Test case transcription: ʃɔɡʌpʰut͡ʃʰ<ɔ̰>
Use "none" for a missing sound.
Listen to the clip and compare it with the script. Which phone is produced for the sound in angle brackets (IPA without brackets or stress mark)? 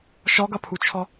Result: ɔ